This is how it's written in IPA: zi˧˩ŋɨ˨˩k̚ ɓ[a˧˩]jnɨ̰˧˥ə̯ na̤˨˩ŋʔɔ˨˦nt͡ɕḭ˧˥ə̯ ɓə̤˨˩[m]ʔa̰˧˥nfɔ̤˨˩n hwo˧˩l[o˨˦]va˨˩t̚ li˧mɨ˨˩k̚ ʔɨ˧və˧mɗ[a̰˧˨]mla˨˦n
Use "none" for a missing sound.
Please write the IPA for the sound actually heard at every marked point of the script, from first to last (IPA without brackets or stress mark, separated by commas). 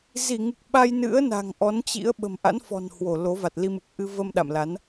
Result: a˧, m, o˨˦, a̰˧˨